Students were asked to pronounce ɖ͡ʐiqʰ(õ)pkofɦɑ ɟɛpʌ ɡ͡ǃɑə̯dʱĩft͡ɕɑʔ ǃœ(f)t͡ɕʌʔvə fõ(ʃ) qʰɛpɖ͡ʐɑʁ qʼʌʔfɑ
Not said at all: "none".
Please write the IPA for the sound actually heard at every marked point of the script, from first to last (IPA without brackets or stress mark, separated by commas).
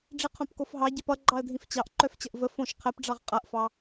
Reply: õ, f, ʃ